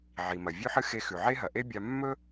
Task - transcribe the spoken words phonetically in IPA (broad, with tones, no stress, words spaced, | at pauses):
ʕi˩mɐ˩ vʲʉ˧ħɨ˧ xe˧xʉ˩ʕe˥ɦɐ˩ ʔe˥ bʲa˧ mːɵ˥